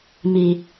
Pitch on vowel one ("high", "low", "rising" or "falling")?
low